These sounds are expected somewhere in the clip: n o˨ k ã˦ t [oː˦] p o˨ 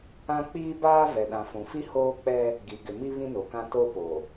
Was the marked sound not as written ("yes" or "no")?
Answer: yes